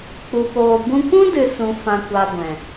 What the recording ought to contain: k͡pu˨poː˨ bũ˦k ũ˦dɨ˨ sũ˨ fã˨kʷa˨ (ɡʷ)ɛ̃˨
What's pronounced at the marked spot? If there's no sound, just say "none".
ɡʷ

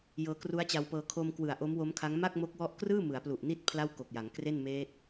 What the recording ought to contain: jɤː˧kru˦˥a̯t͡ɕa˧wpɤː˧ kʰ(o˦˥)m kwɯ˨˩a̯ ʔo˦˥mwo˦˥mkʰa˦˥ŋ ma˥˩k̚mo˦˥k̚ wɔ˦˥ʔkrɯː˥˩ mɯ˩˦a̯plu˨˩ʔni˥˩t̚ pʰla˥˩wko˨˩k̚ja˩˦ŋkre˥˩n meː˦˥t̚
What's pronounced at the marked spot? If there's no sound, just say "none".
o˧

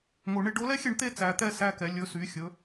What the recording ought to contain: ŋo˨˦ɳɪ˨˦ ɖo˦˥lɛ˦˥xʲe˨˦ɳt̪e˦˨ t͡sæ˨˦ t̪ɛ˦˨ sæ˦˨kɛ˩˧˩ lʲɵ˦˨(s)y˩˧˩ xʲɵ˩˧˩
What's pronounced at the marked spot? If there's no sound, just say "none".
s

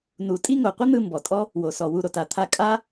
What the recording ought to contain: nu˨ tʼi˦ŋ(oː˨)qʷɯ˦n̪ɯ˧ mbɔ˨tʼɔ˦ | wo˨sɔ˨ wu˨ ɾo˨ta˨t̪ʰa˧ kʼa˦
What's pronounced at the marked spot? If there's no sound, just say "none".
o˨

